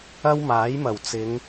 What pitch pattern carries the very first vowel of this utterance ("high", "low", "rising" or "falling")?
high